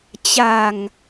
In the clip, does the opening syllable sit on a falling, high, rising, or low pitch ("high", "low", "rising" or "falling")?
low